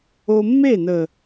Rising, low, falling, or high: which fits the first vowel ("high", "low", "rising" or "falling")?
high